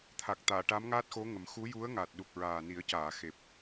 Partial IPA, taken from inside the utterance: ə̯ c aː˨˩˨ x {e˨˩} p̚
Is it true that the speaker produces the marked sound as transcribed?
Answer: yes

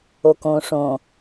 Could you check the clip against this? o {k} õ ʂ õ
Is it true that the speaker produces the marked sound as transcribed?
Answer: yes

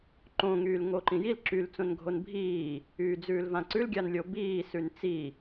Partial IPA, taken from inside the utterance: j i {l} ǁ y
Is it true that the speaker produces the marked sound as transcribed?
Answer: yes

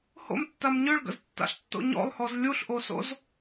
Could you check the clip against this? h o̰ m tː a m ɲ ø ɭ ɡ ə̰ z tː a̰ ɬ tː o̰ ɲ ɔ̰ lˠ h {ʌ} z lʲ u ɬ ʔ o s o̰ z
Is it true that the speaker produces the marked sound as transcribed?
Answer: no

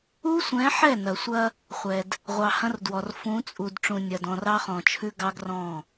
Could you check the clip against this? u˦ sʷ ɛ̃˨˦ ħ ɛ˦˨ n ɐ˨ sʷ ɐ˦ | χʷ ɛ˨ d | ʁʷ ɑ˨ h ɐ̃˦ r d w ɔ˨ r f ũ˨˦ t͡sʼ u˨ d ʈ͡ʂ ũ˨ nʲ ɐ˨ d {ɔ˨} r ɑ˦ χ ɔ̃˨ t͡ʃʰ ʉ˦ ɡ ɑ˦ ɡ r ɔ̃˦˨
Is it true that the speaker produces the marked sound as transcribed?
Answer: no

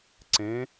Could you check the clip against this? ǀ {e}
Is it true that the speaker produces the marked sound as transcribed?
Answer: no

